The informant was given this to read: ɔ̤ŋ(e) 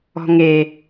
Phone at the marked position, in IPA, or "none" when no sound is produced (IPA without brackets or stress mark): e